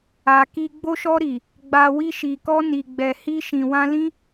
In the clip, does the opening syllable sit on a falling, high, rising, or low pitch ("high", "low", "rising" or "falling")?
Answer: low